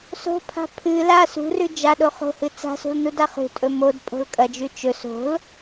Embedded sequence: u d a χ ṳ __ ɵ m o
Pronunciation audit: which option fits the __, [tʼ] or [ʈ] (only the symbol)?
tʼ